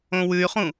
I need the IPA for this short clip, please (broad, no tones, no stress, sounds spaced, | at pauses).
õ w ʉ y̯ χ ũ